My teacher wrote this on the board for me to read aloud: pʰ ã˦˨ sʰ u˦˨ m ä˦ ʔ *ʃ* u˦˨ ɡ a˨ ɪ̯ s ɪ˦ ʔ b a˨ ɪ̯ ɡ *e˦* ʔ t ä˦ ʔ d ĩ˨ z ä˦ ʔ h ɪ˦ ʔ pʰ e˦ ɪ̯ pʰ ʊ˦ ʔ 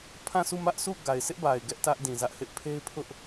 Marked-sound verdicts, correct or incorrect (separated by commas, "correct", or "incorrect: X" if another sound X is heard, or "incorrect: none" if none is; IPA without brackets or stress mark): incorrect: s, incorrect: ɛ˦